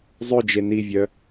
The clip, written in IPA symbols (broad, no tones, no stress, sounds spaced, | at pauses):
zˤ ø d͡ʒ e n i vʲ œ